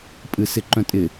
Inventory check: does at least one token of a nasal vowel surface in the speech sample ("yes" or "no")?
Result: yes